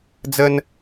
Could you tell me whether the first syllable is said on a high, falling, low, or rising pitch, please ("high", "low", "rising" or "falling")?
high